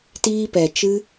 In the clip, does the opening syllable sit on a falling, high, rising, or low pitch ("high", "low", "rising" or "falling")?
high